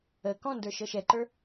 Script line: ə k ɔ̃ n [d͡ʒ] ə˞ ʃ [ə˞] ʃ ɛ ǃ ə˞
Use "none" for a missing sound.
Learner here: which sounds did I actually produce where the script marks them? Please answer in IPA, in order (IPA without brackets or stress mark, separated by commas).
d, ɤ